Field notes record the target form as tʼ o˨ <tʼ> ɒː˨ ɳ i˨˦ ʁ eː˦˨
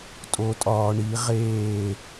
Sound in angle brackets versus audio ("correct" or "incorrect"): correct